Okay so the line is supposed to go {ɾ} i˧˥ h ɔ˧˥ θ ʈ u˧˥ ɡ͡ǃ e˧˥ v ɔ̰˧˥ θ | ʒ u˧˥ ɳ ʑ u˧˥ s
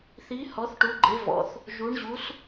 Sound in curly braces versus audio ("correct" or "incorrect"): incorrect